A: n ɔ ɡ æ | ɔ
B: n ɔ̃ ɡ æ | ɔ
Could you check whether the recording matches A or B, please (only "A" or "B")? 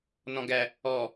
B